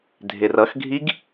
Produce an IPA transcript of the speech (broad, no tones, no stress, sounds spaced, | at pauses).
dʱ ɪ r ʌ x ɡʱ i ɡ